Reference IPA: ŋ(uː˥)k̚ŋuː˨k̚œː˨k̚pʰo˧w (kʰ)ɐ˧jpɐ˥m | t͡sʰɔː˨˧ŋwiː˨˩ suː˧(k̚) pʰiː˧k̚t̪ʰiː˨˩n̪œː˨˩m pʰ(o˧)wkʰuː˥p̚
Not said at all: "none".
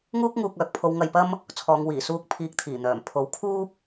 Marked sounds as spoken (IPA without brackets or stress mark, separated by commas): uː˥, ŋ, k̚, o˨˥